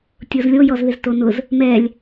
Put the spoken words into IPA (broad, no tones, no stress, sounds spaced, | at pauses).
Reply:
tʲ ʊ z lʲ o j ɔ z ð ɪ z t o n ʊ z | m ɛ lʲ